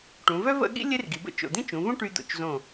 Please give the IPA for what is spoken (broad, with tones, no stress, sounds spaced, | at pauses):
ʈ ũ˩˧ v œ˥ v ə̰˥˧ ɠ ḭ˥ lʲ e˥ r ɡ i˩˧ b ə̰˥˧ t͡ʃ o̰˧˩ d̪ ĩ˥ t͡ʃ ũ˩˧ v ũ˥ ʈ y˧ d̪ o̰˧˩ t͡ʃ z õ˧˩